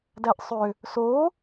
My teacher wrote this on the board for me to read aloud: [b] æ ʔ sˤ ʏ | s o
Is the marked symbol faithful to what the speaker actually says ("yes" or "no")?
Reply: no